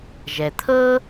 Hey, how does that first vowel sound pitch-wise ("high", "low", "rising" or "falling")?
low